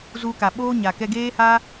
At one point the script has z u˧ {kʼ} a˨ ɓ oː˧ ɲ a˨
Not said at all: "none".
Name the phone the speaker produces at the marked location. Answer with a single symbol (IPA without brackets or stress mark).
k